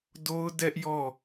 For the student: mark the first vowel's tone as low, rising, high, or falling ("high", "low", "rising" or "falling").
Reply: high